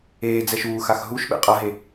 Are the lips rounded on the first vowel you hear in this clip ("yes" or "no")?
no